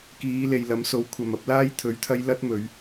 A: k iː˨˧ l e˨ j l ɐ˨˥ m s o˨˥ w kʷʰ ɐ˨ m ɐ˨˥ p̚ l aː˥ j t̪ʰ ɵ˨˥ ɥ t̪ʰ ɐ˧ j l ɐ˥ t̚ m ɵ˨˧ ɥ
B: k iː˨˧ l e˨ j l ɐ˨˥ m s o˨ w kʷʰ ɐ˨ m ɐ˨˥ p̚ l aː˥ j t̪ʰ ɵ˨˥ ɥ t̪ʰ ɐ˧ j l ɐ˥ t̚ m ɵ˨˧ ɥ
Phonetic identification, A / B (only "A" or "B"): A